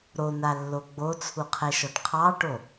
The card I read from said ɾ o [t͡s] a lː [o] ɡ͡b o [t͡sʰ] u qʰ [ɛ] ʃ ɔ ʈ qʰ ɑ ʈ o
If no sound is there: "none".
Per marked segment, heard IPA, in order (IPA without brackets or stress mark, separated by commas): n, o, t͡sʰ, ɛ